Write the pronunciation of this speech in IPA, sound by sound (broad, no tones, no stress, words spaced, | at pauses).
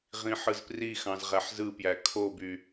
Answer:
ʁĩħɯzprixɑ̃z ʁæħzɯpjæ kʰoby